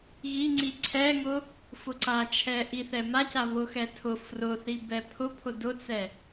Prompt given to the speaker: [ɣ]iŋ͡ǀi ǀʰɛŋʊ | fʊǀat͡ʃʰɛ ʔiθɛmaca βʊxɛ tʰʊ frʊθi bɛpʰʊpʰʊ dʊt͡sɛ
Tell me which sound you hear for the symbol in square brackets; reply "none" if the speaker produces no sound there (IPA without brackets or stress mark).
ɣ